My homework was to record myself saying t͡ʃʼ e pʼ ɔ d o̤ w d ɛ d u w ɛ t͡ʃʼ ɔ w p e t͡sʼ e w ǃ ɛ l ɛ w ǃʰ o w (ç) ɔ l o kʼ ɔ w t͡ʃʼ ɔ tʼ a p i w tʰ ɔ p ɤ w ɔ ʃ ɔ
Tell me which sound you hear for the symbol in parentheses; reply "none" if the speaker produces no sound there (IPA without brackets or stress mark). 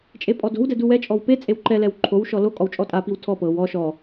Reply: ʃ